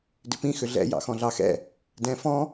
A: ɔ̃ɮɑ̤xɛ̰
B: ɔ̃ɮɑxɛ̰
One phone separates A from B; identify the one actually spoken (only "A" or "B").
B